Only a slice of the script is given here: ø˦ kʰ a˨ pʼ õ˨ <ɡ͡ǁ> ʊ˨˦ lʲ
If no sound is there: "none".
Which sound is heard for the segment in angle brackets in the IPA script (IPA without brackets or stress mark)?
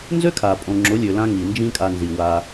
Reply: ŋ͡ǁ